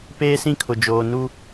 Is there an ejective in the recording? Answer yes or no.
no